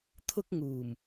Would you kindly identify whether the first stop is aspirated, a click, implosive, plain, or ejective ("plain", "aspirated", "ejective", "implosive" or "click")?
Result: aspirated